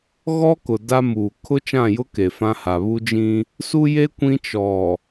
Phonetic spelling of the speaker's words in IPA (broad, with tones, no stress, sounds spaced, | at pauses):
ɣ ɔ˦ k ʊ˨ d a˦ m uː˨ kʰ ʊ˦ t͡ʃ ã˦˨ j ʊ˦ k e˨ f ã˦ h a˨ β u˦ d͡ʒ ĩ˦ | s u˦ j e˦ kʷ ĩ˦ t͡ʃ ɔ˨